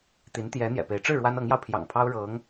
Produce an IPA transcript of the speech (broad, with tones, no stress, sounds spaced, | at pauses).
t̪ i˧˥ n t̪ j ɛ˧˥ n̪ j ɛ̰˨˩ p e˧˥ ɪ̯ ʈ͡ʂ ɻ̩˥˩ ɻ w a˥ n ɤ˧˥ ŋ j ɑ˧ ʊ̯ pʰ j ɑ̰˨˩ ŋ pʰ ɑ˥ ʊ̯ ɻ ɤ˧˥ ŋ